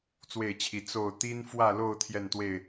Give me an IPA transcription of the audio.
t͡s w e˥˨ ɪ̯ t͡ɕʰ i˨˦ t͡s o˥˨ ʊ̯ t̪ i˦ n f w ä˥˨ l o˥˨ ʊ̯ t̪ʰ j ɛ˥˨ n t̪ w e˥˨ ɪ̯

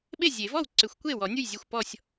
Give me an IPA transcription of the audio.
ɓ e˥˩ zʲ e˨˩˦ v ɔ˥˩ w ǀ ʏ˨˩˦ xʷ kʷ e˥˩ w ɔ˨˩˦ nʲ u˥˩ j zʲ ɛ˥˩ xʷ p ɔ˥˩ sʲ

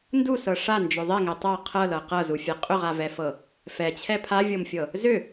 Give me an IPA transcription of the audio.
n d u s ɤ ʂ a n d͡ʒ ʏ ðˤ ɛ ŋ ɛ tˤ a qʰ ɤ l ɤ q ɤ z u fʲ ɛ qʼ ʏ ʁ a v ɛ f ɤ | f ɛ t͡ɕʰ ɛ pʰ a vʲ ɤ m fʲ ɤ | z ʏ

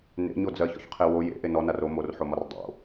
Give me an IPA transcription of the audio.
n ḛ ɲ o d͡z ɜ ç ɔ̰ ç qʰ e w o j ḛ ʔ e n ɔ n a r o m o r ħ o m ɒ r dˤ o̰

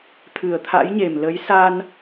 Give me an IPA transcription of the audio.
t̪ʰ ɨ˨˩ ə̯ t̪ʰ a̰˧˥ j ɲ e˨˩ m l ə˨˦ j s a˧ n

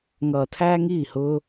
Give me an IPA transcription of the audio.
ŋ ʌː˧ t̪ʰ æː˦ ŋ iː˦˨ h ʊː˦

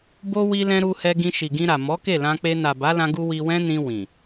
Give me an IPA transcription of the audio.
b o˦ w i˧ l ɛ̃˧ ɾ u˧ h ɛ˧ ɡ ĩ˧ ʃ i˨ ɡ ĩ˧ ɾ a˨ m ɔ˨˦ k e˦˨ l ã˧ k͡p e˧ n a˨ b a˨˦ l ã˧ ɡ u˧ w i˧ w ɛ̃˦ n ĩ˧ w ĩ˨

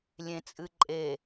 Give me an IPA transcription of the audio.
lʲ ẽ t͡sʼ ɨ ǃʼ e

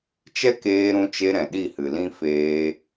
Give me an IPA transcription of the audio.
t͡ʃ ɛ˦ k eː˧ ɾ ũ˧ t͡ʃ e˧ ɾ ɛ̃˨ ɗ i˦˨ h ɨ˨ l ĩ˦ f eː˧

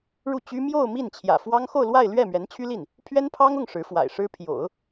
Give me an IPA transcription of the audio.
ɻ u˥˩ t͡ɕ y˥ m j o˥˧ ʊ̯ m i˥˩ n t͡ɕʰ j ä̰˨˩ f w ɑ˥ ŋ x o˥˧ ʊ̯ l w a˥˧ ɪ̯ l ɥ ɛ˥˩ m ɥ ɛ˧˥ n t͡ɕʰ y˥ l i˥˩ n | pʰ ɥ ɛ˥ n pʰ ɑ˥ ŋ ʊ˥˩ ŋ ʂ ɻ̩˧˥ f w a̰˨˩ ɪ̯ ʂ ɻ̩˥ pʰ j o̰˨˩˦ ʊ̯

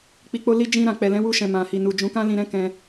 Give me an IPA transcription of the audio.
k͡p i˨ k͡p o˧ l i˧ d͡ʒ ĩ˧ ɾ ã˨ k͡p ɛ˨ l ɛ̃˨˦ w u˧ ʃ ɛ̃˨ m ã˨ h i˨ n u˨ d͡ʒ ũ˨˦ k ã˦ l ĩ˧ ɾ ɛ̃˦ k ɛ̃˧

